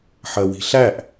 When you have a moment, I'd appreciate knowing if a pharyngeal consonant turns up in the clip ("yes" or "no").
yes